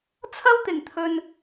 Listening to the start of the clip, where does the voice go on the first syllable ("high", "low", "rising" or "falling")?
high